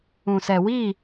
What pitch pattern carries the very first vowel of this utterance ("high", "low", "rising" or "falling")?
low